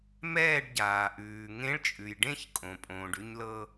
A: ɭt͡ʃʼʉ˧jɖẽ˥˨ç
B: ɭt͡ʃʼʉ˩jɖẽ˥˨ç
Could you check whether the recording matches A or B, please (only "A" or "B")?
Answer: B